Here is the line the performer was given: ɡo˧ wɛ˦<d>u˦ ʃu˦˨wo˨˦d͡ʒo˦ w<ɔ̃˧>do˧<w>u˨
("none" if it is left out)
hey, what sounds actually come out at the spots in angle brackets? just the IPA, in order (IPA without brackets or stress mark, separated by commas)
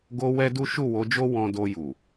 d, ɔ̃˧, j